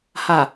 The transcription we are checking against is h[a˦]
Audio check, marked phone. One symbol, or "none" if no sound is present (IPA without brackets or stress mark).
a˨